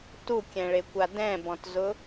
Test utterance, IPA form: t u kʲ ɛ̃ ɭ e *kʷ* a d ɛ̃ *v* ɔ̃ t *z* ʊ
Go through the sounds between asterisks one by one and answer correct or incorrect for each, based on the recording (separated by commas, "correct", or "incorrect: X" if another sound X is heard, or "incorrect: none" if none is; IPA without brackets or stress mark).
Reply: correct, incorrect: b, correct